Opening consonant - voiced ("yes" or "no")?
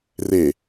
yes